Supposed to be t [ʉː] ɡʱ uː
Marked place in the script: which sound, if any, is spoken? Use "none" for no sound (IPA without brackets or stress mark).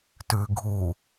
ʉː